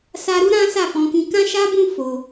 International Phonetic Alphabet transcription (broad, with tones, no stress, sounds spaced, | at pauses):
s a˧ ɾ u˦ ɾ ã˦ s a˦˨ f ɔ̃˧ k ĩ˧ k ã˦ ʃ a˦ b ũ˦ f o˧